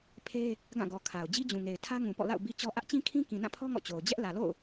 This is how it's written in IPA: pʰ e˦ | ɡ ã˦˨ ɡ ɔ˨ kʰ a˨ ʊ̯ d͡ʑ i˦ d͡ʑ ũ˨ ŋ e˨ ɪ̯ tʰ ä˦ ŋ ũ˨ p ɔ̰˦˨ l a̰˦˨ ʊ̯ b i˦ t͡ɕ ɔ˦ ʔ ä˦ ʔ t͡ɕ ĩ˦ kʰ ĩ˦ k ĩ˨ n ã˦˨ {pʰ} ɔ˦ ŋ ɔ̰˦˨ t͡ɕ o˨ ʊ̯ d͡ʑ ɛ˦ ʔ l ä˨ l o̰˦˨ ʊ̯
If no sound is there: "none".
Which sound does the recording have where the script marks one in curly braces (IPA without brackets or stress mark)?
pʰ